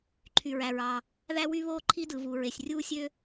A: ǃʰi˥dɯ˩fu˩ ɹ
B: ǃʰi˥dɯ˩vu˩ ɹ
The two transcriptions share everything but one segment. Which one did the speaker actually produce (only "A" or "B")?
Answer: B